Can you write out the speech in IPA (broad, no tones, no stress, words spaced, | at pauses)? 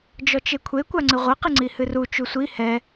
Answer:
d͡ʒɔt͡ʃekʷʰe kʷaŋ͡ǀɨʁʷɐ qɨŋ͡ǀihɨru t͡ʃusʷi hɛ